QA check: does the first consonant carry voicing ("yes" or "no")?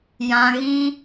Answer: yes